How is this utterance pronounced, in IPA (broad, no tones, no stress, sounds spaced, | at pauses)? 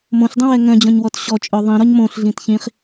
m õ ɬ dˤ ĩ w ɛ ŋ œ̃ d͡ʑ ɔ̃ ɲ w ɔ t ɕ ɔ t͡ʃʼ œ ðˤ ĩ ɾ ɔ ɲ m õ ɬ ɮ ĩ t ç ĩ χ